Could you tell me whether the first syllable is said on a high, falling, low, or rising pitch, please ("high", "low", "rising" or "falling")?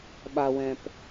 low